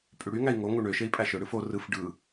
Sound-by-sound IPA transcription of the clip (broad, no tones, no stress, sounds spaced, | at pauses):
pʼ y ɽ y ŋ æ i̯ ŋ o ŋ u ɳ ø ʃ e i̯ pʼ æ ʃ ø ɽ ɯ f o r ɯ f ɖ ɯ